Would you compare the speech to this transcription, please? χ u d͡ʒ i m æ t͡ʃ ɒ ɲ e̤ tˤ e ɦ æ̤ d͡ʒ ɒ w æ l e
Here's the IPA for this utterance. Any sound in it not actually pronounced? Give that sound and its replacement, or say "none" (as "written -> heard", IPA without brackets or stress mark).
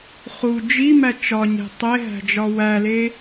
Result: none